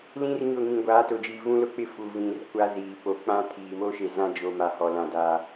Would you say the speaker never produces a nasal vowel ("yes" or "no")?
no